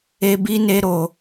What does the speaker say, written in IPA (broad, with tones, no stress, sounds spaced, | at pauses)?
e˧ b i˧ n e˧ ɾ o˧